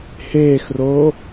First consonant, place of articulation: glottal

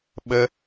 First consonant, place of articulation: labial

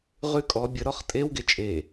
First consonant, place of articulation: uvular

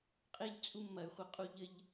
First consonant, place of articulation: uvular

